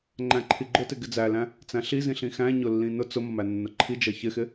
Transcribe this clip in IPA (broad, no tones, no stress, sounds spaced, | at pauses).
ŋ͡ǃ æ̃ ǃʰ i ɡ͡ǃ ʊ t ɪ ɡ ɪ d͡z æ l æ̃ | t͡s æ̃ ɬ i z ĩ ɬ ĩ x æ̃ ɲ ʊ lː ĩ n ʊ t͡s ʊ m ʌ m æ nː ʊ ǃʰ i d͡ʒ ʌ ç ɪ x ɪ